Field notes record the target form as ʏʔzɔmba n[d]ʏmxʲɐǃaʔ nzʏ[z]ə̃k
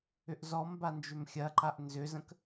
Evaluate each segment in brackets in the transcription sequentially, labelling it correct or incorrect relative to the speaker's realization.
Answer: incorrect: d͡ʒ, correct

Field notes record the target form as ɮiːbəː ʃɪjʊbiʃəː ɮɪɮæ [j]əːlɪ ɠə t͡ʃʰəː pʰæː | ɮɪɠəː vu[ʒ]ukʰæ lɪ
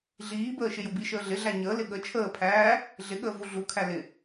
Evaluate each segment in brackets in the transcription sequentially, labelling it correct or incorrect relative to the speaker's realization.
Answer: incorrect: ɲ, incorrect: ɮ

